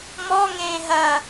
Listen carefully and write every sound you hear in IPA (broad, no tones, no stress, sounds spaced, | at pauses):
m ɔ ŋ ẽː ɦ ɐ